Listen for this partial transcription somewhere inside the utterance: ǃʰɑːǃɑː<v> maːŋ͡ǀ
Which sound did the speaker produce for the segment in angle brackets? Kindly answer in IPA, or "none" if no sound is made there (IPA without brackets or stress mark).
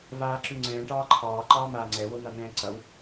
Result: none